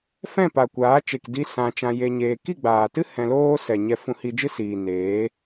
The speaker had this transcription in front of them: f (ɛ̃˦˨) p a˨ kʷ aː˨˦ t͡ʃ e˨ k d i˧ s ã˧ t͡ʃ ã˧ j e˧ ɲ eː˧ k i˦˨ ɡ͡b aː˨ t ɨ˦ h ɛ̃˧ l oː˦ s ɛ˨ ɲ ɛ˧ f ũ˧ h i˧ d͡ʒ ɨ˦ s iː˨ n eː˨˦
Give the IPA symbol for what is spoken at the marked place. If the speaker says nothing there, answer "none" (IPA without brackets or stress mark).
ɛ̃˦˨